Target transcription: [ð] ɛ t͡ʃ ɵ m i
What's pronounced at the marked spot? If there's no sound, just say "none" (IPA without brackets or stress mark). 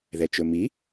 ð